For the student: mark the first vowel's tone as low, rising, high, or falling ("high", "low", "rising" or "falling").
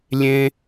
high